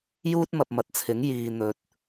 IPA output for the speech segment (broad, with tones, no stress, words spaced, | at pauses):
juː˥t̚mɐ˨p̚mɐ˨t̚t͡sʰɪ˨˥ŋ jiː˨n̪ɵ˨t̚